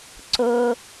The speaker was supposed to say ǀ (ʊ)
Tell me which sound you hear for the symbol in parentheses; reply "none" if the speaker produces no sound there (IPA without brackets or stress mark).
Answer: ʊ